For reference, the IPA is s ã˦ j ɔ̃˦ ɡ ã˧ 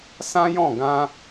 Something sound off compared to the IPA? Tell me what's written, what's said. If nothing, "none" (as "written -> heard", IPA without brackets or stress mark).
ɔ̃˦ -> ɔ̃˦˨